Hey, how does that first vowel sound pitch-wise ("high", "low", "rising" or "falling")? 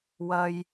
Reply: high